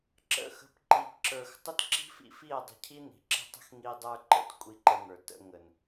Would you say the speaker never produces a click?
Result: no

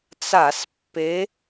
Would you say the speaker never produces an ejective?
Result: yes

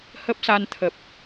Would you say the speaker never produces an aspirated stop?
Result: no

